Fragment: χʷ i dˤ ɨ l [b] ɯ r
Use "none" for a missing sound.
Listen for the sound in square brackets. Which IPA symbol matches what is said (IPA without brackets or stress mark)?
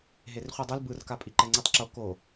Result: b